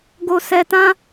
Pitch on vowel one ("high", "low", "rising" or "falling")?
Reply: low